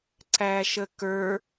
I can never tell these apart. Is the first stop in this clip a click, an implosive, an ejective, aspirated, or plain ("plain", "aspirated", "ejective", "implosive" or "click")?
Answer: click